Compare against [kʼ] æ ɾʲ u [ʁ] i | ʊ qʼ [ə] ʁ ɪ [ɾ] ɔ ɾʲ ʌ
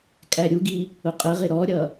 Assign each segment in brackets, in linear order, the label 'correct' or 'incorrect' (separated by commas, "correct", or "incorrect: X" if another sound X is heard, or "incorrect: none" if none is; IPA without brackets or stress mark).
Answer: correct, incorrect: ɡ, correct, correct